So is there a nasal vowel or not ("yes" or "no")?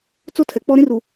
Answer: yes